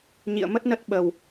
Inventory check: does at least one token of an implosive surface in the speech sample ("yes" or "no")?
yes